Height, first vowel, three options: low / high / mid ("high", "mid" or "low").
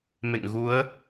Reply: mid